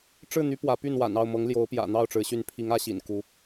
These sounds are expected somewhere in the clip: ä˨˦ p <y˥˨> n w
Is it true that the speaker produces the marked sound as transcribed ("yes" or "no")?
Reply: yes